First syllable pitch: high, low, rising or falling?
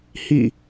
falling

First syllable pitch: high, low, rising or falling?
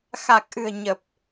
low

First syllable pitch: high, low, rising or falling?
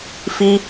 high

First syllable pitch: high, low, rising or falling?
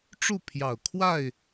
falling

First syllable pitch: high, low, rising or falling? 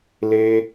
high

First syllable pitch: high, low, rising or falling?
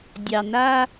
low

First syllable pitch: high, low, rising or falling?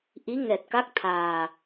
rising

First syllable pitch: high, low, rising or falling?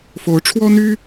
rising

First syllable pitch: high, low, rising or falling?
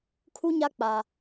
high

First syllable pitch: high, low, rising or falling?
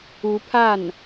rising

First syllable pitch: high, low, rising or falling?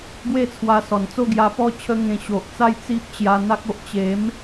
falling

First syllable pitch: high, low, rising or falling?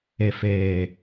low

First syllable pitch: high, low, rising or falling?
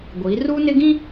rising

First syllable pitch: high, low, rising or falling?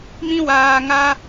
high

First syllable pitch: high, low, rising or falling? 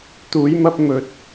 rising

